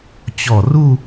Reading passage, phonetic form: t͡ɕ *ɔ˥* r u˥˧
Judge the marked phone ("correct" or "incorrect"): incorrect